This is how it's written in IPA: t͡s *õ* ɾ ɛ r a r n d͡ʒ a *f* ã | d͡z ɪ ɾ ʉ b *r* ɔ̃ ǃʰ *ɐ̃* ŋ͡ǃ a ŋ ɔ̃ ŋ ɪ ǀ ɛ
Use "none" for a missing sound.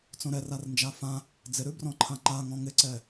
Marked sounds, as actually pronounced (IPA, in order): õ, f, r, ã

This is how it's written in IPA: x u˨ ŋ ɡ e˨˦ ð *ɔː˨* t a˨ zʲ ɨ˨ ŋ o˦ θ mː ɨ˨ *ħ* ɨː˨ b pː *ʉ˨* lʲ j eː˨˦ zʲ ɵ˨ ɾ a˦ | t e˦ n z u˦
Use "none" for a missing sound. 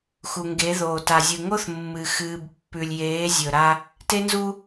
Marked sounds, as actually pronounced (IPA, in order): oː˨, x, ʉ˨

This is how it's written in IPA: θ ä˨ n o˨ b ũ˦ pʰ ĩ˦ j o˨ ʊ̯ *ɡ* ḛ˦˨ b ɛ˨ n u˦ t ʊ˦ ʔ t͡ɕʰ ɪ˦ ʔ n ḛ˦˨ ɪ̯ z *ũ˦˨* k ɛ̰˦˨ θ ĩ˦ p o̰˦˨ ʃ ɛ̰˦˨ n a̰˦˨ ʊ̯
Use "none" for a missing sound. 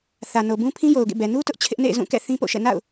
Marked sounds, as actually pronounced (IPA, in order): ɡ, ũ˦˨

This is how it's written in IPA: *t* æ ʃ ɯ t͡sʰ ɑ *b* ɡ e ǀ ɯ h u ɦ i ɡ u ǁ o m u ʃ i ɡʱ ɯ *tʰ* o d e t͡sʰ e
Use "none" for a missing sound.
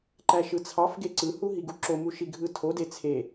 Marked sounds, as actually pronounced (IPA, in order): ǃ, f, tʰ

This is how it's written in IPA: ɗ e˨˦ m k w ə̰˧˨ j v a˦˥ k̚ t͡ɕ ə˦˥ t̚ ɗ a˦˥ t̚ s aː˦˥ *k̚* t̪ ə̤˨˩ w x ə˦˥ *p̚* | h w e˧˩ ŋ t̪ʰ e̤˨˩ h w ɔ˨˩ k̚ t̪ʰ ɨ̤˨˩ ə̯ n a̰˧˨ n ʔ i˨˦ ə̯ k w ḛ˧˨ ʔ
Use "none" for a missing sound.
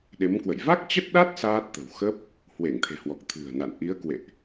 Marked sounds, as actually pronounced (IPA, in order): t̚, p̚

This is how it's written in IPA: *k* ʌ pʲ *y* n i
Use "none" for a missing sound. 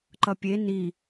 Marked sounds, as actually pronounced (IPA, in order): ǃ, e

